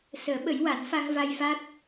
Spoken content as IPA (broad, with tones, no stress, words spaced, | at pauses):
səː˨˩˦ɓə˨˩˦j wa˨˩˦nfa˧ŋva˧j fa˦˥t̚